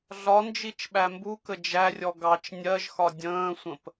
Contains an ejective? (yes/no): no